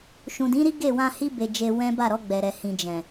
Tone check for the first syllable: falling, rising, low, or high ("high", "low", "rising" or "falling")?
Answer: low